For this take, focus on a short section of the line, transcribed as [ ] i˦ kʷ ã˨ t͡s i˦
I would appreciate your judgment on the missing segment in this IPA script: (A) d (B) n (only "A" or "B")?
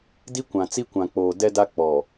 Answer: A